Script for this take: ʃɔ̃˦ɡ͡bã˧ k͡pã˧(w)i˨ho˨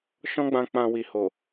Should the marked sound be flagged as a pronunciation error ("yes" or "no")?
no